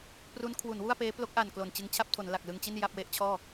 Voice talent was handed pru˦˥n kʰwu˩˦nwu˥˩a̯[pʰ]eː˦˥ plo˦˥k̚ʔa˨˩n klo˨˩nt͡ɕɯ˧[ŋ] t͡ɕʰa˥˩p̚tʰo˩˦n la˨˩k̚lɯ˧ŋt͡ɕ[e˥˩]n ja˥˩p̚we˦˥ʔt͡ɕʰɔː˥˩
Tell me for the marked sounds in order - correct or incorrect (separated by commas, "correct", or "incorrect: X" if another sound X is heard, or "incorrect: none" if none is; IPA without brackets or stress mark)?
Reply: incorrect: p, correct, incorrect: i˥˩